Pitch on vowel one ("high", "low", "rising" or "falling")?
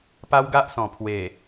high